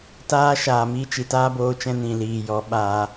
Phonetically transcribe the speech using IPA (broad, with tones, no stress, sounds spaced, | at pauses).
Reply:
t aː˦ ʃ aː˨ m i˧ t͡ʃ i˨ t aː˦ b oː˧ t͡ʃ ɛ̃˧ n ĩ˨ l iː˨ j ɔ˨˦ ɓ aː˧